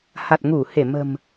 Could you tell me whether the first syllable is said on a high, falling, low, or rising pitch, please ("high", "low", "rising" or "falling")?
low